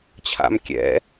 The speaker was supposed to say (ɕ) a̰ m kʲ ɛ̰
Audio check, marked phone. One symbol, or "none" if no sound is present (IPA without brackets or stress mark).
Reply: t͡ɕʰ